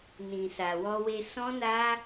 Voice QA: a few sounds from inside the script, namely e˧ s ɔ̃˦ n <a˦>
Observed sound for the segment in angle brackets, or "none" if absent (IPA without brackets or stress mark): a˦